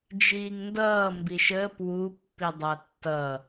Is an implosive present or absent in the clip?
absent